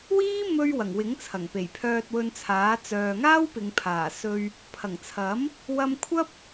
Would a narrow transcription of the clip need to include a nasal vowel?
no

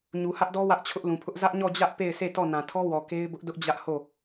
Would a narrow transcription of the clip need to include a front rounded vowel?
no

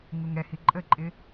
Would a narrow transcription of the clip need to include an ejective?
yes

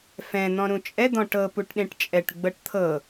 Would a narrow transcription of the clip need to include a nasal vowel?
yes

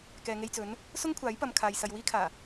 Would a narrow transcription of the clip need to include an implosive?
no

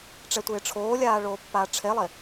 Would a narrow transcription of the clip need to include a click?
no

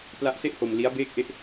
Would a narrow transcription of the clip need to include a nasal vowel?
no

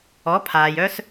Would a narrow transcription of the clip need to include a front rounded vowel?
yes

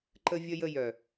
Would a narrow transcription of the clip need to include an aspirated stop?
no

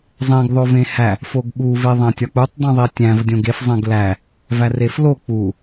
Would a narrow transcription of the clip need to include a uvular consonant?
no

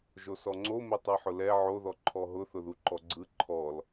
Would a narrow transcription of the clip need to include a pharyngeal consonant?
yes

